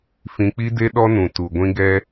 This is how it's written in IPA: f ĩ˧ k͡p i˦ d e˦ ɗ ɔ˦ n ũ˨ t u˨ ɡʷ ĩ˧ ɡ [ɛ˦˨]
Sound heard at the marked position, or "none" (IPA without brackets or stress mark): ɛ˧